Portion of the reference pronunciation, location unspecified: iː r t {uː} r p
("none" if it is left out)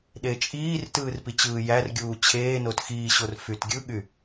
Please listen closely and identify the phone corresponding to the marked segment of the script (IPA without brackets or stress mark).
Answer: ɯː